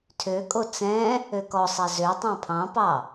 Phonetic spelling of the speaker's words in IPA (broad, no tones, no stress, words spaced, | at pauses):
tʰøkʼo t͡sɛ̃ | økɔsˤæ zøtˤɑ̃ pʰɑ̃pɑ